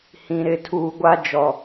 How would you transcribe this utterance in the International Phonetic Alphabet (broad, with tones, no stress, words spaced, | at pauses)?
hĩ˨ ɾɪ˨˦ tʰuː˨ ɡʷa˦ d͡ʒɔ˦